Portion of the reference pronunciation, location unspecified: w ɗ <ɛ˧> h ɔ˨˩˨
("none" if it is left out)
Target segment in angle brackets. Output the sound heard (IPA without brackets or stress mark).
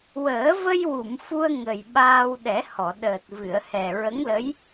ɛ˨˩˦